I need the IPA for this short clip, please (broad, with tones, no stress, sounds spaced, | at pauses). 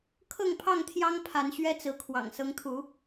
kʰ ɤ˥˨ ŋ pʰ ɑ˥˨ ŋ t̪ʰ j ɑ˦ ŋ pʰ a˨˦ n ɕ ɥ ɛ˦ t͡s ɹ̩˨˦ kʰ w ɑ̰˨˩ ŋ s ɤ˨˦ ŋ t̪ʰ u˨˦